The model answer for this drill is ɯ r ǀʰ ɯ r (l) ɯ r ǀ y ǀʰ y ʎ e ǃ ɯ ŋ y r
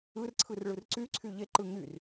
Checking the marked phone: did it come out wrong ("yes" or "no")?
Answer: yes